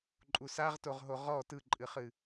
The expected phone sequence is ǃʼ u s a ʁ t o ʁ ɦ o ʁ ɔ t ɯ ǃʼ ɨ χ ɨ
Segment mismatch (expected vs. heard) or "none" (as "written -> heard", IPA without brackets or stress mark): none